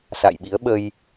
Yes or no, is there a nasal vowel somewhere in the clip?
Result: no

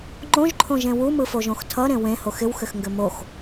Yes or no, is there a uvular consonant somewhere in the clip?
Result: no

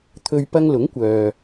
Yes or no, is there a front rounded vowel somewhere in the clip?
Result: yes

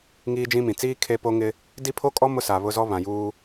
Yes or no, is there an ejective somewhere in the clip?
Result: yes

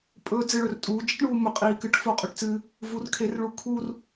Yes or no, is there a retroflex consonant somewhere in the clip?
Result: yes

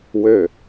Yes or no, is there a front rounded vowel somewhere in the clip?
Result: yes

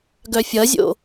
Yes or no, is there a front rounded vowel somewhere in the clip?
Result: yes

